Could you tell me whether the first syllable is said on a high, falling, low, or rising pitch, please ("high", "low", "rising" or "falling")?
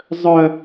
high